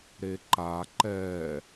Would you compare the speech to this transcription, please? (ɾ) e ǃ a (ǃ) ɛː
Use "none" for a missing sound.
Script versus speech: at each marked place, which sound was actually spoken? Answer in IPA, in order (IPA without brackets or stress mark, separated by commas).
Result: ɾ, ǃ